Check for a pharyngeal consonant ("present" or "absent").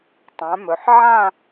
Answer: present